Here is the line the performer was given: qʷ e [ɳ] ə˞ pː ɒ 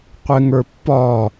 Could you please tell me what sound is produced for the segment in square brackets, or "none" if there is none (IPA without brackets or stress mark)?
ŋ